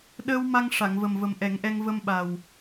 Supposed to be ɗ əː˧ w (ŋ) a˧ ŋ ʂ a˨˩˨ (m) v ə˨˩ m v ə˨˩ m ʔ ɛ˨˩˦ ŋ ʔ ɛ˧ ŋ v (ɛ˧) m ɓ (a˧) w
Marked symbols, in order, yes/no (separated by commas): no, no, no, no